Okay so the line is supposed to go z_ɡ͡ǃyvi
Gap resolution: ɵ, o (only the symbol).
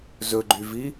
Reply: ɵ